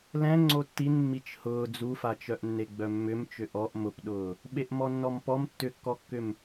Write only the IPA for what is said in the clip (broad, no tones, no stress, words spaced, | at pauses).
lɛ̃ ŋ͡ǀotːin mːit͡ʃhʊː d͡zufat͡ʃœʔnːe ɡ͡bœmːʏm t͡ʃʏʔɔʔ mʊpɗʊː | ɓeʔmɔnːɔmpɔm tːʏkːɔkːʏm